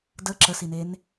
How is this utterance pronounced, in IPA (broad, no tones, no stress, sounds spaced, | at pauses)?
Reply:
d ə ǁ ə s i n e n